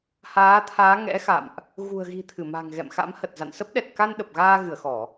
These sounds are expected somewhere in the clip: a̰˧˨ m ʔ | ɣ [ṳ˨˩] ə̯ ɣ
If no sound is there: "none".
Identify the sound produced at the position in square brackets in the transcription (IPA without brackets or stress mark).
ṳ˨˩